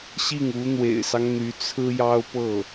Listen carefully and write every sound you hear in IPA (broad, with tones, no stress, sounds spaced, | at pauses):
ɕ i˥˩ ŋ u˧˥ n̪ w ḛ˨˩ ɪ̯ s ɑ˦ ŋ n̪ y˧˥ t͡sʰ ɹ̩˥ j ɑ˥ ʊ̯ p ɤ˥˩